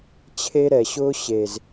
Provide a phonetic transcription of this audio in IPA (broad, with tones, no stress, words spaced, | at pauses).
t͡ɕʰe˦ ɾɛ˨ɕʊː˦ ɕe˨z